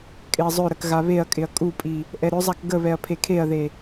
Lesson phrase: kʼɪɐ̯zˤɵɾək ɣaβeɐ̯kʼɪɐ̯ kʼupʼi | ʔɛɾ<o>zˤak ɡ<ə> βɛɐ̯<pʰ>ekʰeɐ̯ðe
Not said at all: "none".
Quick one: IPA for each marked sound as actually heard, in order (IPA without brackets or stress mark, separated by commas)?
ɵ, ə, pʰ